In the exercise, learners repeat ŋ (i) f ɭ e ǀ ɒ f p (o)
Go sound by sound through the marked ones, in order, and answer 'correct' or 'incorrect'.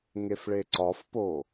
incorrect: e, correct

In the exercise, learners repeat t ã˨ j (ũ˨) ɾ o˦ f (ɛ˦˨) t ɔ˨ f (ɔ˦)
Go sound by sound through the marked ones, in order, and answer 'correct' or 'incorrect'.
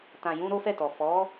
incorrect: ũ˧, correct, incorrect: ɔ˨˦

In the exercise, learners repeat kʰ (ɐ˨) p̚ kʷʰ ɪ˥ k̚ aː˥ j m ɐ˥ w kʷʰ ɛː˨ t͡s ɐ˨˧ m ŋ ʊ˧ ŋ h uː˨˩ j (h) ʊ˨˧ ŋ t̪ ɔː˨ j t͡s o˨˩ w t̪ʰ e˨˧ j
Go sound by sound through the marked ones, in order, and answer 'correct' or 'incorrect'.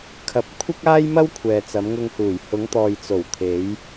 incorrect: ɐ˧, correct

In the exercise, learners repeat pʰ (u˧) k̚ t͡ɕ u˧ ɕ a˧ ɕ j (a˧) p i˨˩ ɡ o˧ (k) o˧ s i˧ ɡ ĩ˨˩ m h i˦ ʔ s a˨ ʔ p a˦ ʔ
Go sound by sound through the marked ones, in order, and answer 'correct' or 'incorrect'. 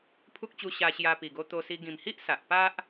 incorrect: u˦, correct, incorrect: t̪

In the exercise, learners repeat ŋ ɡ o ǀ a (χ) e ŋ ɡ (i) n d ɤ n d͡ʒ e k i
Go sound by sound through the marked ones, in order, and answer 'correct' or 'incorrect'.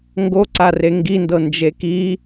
incorrect: r, correct

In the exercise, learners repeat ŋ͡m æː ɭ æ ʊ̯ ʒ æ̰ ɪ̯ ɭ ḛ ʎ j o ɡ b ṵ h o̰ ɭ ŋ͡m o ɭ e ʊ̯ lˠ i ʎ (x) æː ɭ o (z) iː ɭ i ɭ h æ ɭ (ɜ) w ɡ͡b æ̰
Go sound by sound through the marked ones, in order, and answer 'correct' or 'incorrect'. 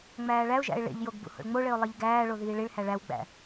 incorrect: ɡ, incorrect: ð, incorrect: æ

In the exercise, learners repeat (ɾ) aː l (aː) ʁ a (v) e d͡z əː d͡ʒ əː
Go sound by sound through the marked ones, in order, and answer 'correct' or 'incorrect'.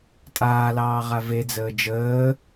incorrect: tʼ, incorrect: ɑː, correct

